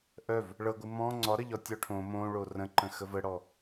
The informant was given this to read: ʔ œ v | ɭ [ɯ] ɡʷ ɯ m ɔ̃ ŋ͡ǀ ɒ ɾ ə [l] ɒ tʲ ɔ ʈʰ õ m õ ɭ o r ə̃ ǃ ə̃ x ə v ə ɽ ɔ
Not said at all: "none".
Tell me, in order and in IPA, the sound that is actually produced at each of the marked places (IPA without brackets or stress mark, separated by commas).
ɤ, ʎ